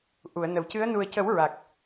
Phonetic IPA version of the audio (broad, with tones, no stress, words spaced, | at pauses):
ʔu˨˩˨ə̯nə˨˩˨wcɨ˧˥ə̯ nu˨˩ə̯cə˨˩˦w ɹa˨˩k̚